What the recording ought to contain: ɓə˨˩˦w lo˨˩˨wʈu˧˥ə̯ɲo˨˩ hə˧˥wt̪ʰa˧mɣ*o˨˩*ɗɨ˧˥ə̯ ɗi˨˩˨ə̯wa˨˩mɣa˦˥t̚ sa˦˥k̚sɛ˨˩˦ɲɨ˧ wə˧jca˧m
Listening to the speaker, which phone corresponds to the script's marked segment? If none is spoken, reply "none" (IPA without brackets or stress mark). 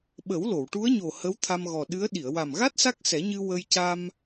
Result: ɔ˨˩